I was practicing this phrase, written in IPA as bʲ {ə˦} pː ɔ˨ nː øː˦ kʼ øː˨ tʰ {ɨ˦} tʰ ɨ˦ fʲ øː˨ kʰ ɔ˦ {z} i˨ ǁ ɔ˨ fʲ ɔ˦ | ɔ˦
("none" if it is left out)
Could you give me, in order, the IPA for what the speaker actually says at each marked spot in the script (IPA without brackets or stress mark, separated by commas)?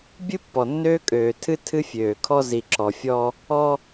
ɨ˦, ɨ˦, z